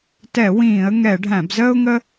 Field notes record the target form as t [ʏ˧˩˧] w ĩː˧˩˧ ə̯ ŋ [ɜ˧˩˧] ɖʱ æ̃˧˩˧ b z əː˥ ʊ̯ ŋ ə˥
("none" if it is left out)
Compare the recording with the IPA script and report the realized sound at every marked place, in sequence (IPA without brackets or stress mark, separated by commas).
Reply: ɛ˧˩˧, ɛ˧˩˧